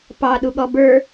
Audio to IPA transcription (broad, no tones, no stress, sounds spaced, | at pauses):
p ɑ ɗ u ɠ ɔ b ə˞